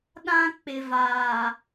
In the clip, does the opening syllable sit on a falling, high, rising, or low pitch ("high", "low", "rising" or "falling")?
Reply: high